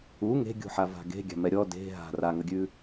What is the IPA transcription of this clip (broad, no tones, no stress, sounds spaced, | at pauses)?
u ŋ e̤ ɡʲ ṳ ħ a v a̤ ɡ e̤ ɡʲ a̤ m ɛ ɾʲ ɔ d e̤ ɦ a̤ r a ŋ ə ɡʲ ʉ